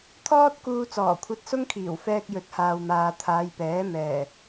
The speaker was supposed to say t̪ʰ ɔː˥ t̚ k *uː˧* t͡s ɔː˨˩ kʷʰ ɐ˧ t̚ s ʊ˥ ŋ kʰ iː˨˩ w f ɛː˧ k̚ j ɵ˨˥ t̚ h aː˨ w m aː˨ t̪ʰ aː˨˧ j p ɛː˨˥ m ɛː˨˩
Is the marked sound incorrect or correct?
correct